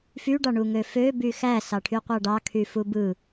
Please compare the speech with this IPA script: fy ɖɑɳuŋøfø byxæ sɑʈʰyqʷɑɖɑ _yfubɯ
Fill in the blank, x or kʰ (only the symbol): kʰ